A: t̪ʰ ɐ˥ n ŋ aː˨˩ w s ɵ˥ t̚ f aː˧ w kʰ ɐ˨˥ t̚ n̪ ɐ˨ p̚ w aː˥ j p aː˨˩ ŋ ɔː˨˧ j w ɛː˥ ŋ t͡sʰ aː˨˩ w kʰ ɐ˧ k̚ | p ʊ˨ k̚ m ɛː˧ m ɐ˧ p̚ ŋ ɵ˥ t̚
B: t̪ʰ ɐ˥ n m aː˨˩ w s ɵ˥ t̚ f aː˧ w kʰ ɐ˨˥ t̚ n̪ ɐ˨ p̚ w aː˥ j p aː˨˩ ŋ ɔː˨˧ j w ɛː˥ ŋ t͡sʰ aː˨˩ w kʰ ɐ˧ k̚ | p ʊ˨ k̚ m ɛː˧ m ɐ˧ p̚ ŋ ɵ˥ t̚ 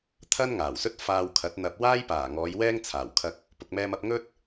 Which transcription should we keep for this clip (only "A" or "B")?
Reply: A